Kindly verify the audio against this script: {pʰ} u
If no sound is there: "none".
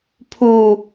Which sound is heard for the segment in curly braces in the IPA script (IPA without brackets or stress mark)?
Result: pʰ